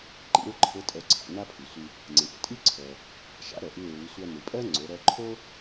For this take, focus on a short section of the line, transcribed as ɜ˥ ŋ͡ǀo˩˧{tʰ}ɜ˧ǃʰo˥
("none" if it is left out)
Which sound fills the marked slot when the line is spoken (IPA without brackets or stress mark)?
ɾ